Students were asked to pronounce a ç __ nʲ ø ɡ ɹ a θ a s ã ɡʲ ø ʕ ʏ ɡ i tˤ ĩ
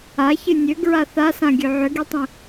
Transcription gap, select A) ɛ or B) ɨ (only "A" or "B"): B